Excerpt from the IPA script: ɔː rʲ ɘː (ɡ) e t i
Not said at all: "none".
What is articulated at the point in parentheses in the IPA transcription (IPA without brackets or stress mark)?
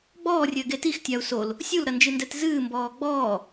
ɡ